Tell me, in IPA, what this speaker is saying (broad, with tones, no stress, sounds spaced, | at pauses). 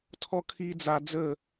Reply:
tʰ ɔ˦ kʰ i˦ d͡z a˧ d͡z ə˦˨